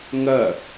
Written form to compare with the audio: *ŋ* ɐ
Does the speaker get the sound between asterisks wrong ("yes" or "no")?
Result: no